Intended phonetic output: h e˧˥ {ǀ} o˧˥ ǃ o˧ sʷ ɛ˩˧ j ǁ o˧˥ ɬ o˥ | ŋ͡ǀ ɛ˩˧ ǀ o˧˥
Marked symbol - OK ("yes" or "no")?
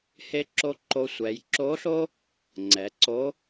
no